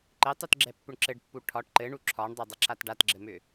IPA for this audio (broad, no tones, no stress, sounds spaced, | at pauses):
ǃ ɘ tˤ u t ɡ͡ǁ ɛ pː ʏ ɳ ǁ ɘ ɖ pː u ʈʰ ɒ ʈ ǃ ɘ ɳ u ǁʰ ɒ ɳ dˤ ɛ dˤ ɘ ǁ a t ɖ a t ɡ͡ǁ ɘ m ʏ